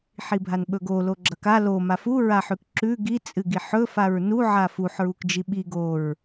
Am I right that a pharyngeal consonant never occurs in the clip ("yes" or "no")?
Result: no